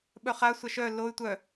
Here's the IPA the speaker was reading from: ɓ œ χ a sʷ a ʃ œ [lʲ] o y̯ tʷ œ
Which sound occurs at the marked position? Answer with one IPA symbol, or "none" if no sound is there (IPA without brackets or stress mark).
l